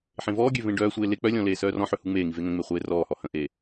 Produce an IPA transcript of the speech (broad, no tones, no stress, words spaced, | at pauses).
ħẽvɔːɡʲø vẽɖœːsʷeː le k͡pœlʲɔ̃ leːsœːrɔ̃ħø huŋ͡meːŋi veŋə̃ŋ͡me χʷeːrɔːhɔ hə̃ʔeː